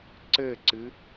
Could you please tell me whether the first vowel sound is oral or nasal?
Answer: oral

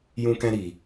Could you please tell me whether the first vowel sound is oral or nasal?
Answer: nasal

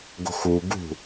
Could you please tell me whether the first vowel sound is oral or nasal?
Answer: oral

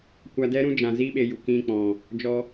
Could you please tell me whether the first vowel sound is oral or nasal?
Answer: oral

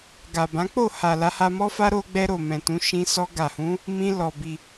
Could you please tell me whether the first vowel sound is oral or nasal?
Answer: oral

